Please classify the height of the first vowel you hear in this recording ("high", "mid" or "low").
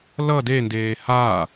mid